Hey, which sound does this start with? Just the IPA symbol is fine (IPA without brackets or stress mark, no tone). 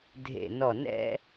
dʱ